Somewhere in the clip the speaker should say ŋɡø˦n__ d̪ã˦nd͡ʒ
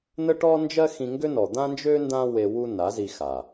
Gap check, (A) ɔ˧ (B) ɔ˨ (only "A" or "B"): B